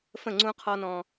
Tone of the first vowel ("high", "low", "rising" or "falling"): falling